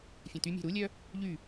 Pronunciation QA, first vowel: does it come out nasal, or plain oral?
nasal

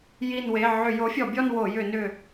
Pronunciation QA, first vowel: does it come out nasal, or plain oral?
oral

